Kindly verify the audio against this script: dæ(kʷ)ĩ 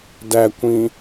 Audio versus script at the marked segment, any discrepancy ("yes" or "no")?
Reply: no